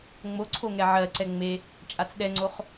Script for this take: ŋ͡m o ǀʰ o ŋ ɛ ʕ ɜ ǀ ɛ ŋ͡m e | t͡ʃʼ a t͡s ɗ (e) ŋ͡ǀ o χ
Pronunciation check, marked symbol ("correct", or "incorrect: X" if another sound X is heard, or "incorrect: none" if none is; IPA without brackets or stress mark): incorrect: ɛ